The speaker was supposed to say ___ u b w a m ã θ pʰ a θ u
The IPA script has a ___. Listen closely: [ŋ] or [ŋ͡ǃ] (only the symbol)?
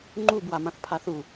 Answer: ŋ͡ǃ